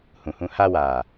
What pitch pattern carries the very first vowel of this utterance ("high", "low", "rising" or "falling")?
low